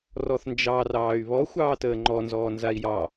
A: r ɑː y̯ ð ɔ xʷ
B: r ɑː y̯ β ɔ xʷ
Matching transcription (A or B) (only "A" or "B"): B